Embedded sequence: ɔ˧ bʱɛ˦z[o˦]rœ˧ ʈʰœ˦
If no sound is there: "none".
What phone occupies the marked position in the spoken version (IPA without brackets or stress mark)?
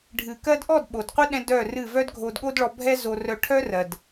o˧